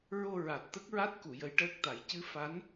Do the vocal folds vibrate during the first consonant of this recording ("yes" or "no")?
yes